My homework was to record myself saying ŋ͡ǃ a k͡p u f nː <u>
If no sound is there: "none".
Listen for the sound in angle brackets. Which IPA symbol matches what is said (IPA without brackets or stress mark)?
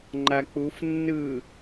ɯ